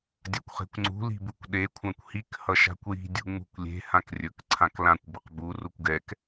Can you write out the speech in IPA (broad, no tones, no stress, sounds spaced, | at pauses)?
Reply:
dʲ a kʷ χ e̤ kʷ ŋ͡ǀ ṳ l i̤ b u kʷ ɗ e kʷʰ ã kʷ h i k h ʌ ʃ a̤ kʷ j i̤ dʲ ṳ ŋ͡m ṳ kʷ lʲ e̤ h ã k rʲ ɵ k ǀʰ ã k l ã kʷ b ʊ q b u r u kʷ ɡ ɛ k